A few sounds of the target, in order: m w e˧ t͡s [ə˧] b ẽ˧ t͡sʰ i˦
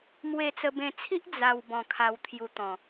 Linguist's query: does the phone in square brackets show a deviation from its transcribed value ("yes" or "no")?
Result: no